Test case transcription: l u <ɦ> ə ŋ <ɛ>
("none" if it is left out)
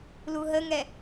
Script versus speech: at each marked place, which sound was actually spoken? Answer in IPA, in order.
ɦ, ɛ

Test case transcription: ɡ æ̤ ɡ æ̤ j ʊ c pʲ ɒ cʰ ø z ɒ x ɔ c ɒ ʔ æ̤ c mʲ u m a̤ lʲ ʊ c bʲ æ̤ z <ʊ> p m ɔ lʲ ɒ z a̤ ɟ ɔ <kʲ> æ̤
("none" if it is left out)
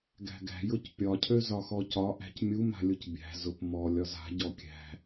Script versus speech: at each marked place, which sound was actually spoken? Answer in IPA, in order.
ʊ, kʲ

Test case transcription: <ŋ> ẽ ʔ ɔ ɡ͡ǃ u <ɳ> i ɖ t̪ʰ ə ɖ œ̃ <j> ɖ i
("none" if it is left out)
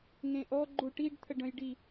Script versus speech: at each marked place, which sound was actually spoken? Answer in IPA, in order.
ŋ, ʈ, j

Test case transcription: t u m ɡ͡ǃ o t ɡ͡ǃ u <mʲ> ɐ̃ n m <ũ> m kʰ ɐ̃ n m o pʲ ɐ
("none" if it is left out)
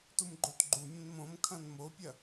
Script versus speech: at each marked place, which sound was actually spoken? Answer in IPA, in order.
mʲ, õ

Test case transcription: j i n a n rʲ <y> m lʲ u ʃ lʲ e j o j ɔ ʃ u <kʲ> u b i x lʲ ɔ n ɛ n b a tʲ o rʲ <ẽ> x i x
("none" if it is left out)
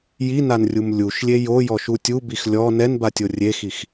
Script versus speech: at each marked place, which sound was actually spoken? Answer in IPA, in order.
u, tʲ, e

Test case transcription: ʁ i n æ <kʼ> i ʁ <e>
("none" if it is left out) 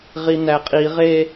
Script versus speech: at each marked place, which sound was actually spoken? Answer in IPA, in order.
qʼ, e

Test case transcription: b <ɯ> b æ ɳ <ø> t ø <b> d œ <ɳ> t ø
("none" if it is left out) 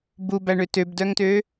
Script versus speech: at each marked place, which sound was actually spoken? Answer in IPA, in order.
u, ø, b, ŋ

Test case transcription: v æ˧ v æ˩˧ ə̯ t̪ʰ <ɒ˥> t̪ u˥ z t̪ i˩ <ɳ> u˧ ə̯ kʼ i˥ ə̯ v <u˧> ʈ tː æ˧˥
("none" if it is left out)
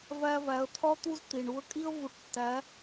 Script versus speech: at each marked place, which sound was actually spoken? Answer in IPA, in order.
ɒ˥, ɳ, u˧

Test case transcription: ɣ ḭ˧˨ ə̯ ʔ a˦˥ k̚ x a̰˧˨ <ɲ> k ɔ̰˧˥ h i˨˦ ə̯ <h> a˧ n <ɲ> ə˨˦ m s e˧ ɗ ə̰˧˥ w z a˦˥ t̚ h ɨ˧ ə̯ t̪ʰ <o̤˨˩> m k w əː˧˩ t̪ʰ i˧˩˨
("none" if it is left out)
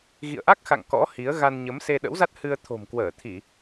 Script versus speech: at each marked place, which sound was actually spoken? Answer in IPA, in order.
ŋ, ɣ, ɲ, o̤˨˩

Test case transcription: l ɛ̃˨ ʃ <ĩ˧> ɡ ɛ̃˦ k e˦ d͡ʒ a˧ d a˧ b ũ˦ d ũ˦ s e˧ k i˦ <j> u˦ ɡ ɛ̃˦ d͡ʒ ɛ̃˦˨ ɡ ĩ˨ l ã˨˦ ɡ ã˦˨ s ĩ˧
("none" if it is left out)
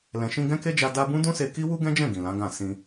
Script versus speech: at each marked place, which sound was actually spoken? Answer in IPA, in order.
ĩ˧, w

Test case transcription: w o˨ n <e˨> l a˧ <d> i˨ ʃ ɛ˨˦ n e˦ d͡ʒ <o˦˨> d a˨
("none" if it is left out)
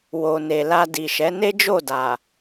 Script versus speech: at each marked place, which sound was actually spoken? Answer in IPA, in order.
e˨, d, o˦˨

